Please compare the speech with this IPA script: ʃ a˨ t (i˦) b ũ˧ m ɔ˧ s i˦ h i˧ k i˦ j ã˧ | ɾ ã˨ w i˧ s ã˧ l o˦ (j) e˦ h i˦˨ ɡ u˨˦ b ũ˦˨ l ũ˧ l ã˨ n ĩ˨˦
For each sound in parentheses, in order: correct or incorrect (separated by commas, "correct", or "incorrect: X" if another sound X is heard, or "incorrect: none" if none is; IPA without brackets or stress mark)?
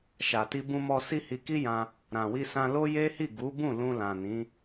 incorrect: i˧, correct